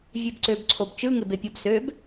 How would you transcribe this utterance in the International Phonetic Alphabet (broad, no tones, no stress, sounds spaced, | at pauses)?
vʲ e b ǀ ø b ǀʰ o b t͡ʃ ɯ ŋ e b e pʲ o b s ø b